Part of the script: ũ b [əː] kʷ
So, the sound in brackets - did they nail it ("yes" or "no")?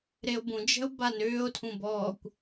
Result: no